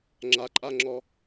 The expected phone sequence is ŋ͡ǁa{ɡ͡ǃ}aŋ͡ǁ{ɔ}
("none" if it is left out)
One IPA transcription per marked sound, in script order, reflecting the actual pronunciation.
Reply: ǃʼ, ɔ

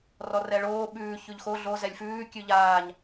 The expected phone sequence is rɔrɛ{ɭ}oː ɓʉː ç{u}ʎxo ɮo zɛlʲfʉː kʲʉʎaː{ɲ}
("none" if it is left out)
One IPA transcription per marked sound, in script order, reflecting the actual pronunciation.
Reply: ɭ, ʉ, ɲ

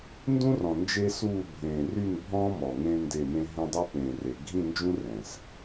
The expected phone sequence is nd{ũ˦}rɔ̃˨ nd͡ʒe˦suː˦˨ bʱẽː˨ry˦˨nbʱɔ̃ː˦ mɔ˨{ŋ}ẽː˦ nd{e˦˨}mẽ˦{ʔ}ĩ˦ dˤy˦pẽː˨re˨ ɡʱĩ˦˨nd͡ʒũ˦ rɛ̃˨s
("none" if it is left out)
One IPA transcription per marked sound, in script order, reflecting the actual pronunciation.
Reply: ũ˦, ŋ, e˦˨, ɦ

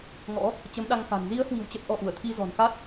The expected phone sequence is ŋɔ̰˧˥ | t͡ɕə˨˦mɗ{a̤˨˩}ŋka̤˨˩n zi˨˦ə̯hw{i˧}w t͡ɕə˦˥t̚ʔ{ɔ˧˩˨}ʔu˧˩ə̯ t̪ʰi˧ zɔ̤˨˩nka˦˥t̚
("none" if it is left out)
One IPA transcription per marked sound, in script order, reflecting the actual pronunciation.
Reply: a˧, i̤˨˩, ɔ˧

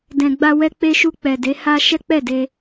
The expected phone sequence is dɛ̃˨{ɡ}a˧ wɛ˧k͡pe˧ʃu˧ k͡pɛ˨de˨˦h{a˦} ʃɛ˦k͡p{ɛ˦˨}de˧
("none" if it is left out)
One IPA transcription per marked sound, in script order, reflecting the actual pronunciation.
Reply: ɡ͡b, a˦, ɛ˦˨

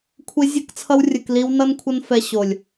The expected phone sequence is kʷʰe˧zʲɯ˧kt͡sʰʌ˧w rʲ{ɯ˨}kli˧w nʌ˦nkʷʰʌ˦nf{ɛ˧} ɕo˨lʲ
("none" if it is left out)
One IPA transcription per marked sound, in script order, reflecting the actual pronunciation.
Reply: ɯ˨, ɛ˧

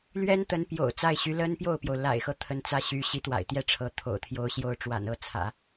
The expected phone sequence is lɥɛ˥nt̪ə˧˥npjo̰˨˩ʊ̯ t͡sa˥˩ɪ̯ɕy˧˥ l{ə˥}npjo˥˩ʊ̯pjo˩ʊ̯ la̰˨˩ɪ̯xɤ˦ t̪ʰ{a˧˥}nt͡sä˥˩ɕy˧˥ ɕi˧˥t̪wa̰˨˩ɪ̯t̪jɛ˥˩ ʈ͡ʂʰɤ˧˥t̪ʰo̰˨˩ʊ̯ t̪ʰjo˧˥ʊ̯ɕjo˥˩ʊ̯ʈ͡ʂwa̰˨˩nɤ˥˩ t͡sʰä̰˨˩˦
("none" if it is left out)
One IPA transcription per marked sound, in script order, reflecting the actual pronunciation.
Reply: ə˥, ə˧˥

